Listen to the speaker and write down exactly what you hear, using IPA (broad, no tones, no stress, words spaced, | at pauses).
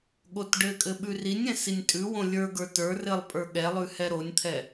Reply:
ɠotɖɘkʼɘ ɓʉrinʲɛ̃ sinʲtʼʉwõ lʲə˞ɡə˞ tə˞ rɘlˠpʼə˞ ɠɛlˠʉ hɛɾonʲt̪ʰɛ